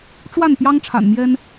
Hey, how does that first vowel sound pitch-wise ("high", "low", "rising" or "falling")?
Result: falling